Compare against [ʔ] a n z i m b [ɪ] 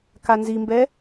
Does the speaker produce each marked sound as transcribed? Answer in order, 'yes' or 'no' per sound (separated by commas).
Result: no, no